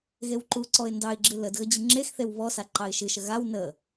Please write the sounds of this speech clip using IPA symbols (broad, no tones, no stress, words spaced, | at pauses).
ɣewǃuǀɔɪ̯ ndɑɪ̯ɡ͡ǁɨ lədɣə d͡ʑɨŋ͡ǁexθew βɔsa ǃɑɪ̯ʃɨʃə ɣaw nə